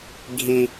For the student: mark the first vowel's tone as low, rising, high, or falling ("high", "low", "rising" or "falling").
high